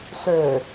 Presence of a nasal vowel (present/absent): absent